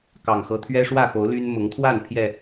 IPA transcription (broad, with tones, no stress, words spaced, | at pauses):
kɑ˨˩ŋxɤ˨˦ t̪ʰɥɛ˦ʂwä˥˨xo˨˦ʊ̯ ly˦n mʊ˨˦ŋt̪ʰwa˥˨n pʰjɛ˥˨